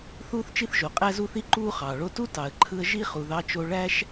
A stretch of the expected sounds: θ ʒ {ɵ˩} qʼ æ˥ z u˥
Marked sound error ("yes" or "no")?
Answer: yes